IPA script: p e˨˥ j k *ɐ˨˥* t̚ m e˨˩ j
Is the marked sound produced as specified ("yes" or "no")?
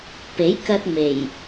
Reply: no